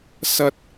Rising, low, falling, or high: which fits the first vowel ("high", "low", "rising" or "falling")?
high